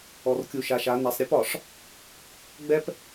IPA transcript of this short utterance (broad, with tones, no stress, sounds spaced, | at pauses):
ɔ˨ r kʲ u˨ ʃ a˨ ʃ a˨˦ n a˨ sˤ ɾʲ ɯ˦ p ɒ˨ ʂ | ɡ͡b ɛ˦ p